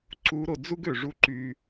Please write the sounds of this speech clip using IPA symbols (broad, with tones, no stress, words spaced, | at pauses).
ǀu˧˥ɾo˩˧ d͡zu˥ɡø˩ ʐu˥ ǃy˧